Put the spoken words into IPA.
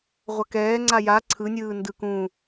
ʁʷ ʌ k ɛː ŋ͡ǀ a j a ǀʰ ɯ nʲ ɯː n d ɯ k ũ

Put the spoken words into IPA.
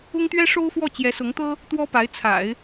ʊ˥ ŋ t̪ ɥ ɛ˥ ʂ o˥ ʊ̯ f w ɔ˥˩ t͡ɕ j ɛ˧˥ s ʊ˧˥ ŋ t̪ ɤ˥ | t̪ w ɔ˥ p a˧˥ ɪ̯ t͡sʰ a̰˨˩˦ ɪ̯

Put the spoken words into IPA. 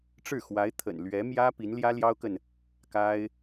ʈ͡ʂ ɻ̩˥˩ x w a˧˥ ɪ̯ t̪ʰ ə̰˨˩ n l ɥ ɛ˧˥ m j ä˥ p i˧˥ n l j ä˥ l j ɑ˥ ʊ̯ k ə˨ n | k a˥ ɪ̯

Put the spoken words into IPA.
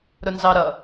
ɾ ʊ n z ɑ ɾ ʌ

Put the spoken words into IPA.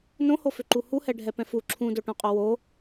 n õ h o f ʏ ǃ u h u h ɛ ɖʱ ɛ p ɛ̃ f u ǁʰ ũ d o ʈ õ qʼ o w o

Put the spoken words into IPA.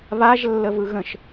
β a ʒ lː ə v ɯ ɣ ə̃ ʃ

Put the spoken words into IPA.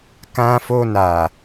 k ã˧ f o˧ n a˨

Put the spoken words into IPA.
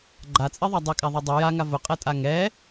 ɡ͡ǃ a t͡sʼ i ðˤ a dˤ i kʼ a ðˤ i dˤ i j a ŋ a v ʊ qʼ ɛ tʼ a ŋ ɛ

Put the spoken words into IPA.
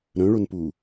ɾ œ̃ ɭ o n p u

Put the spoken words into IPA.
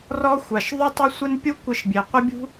r ɔ˦ xʷ a˨ ʃ ðˤ u˦ tˤ ɪ˦ sʷ ɪ˦ n pʲ u˦ kʷ ɪ˧ ʃ bʲ e˨ qʷ ɪ˦ bʲ ṳ˦

